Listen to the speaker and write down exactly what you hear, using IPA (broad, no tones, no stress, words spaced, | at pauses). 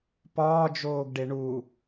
pɒːd͡ʒoːɡɖe ɳu